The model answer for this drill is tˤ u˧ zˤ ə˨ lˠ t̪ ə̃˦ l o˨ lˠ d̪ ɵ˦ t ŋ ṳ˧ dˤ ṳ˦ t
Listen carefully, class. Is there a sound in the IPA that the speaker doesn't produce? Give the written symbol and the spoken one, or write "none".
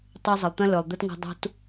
o˨ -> ɵ˨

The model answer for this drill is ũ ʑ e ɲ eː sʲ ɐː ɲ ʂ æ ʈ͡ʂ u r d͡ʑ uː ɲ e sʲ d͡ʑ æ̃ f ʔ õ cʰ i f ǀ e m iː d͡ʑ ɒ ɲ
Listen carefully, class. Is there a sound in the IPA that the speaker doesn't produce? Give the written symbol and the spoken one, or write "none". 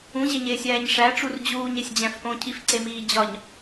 ɐː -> æː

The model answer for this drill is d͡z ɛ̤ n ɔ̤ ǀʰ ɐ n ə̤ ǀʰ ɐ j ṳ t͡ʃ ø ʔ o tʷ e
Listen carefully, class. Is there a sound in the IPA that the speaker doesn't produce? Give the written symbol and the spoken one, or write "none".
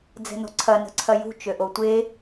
none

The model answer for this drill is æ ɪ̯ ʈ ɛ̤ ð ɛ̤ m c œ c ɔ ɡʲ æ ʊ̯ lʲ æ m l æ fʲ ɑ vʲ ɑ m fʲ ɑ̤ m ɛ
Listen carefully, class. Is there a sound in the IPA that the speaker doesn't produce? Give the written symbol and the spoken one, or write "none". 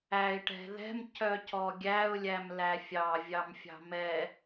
none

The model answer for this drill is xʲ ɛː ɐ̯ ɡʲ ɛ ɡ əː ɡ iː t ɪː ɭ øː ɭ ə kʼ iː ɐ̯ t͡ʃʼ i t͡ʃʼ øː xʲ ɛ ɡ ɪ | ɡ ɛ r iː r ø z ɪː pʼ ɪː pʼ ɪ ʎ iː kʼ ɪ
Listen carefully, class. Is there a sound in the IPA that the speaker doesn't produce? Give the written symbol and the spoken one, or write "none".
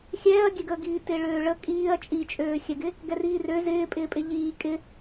none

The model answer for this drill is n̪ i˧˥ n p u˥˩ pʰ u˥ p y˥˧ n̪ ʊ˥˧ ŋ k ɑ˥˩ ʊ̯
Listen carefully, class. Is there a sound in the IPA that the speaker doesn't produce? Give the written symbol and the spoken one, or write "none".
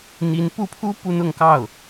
y˥˧ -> u˥˧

